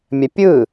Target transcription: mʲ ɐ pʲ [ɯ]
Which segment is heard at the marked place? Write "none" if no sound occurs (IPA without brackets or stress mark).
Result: ɯ